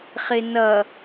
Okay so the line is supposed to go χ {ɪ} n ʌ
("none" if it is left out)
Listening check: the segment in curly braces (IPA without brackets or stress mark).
ɪ